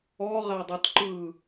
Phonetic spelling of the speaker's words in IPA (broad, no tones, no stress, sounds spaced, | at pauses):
ɔ ʁ a dˤ u t ǃ ɯ